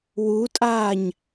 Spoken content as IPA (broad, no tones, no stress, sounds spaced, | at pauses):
w u tʼ aː ɲ